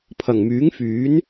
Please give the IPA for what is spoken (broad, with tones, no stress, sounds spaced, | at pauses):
pʰ ɐ˨˩ ŋ m yː˨˥ ŋ f yː˨˥ n